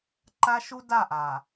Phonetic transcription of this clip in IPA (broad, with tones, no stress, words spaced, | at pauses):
ǃa˦ʃu˦da˦˨ʔa˨